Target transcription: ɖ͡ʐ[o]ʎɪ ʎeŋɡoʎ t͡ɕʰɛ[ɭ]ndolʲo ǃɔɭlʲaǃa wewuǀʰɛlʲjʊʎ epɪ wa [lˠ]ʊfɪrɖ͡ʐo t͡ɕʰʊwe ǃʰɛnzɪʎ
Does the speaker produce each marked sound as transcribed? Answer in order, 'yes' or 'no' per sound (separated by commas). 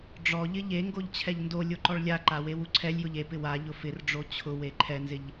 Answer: no, no, no